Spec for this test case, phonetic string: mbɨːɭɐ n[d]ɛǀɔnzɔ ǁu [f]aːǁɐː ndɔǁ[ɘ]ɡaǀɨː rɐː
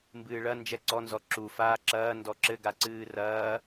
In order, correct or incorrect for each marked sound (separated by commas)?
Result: incorrect, correct, correct